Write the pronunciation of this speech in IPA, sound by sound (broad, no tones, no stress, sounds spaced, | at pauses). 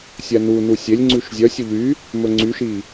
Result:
sʲ æ n u n u sʲ e lʲ ŋ͡ǀ ʉ ʃ zʲ œ sʲ u ʎ y | m ɵ ŋ͡ǀ y ʃ i